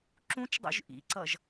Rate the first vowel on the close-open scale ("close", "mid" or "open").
close